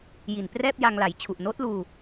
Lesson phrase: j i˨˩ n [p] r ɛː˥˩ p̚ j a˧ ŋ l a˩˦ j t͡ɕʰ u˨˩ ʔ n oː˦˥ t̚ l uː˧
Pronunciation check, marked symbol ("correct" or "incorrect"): correct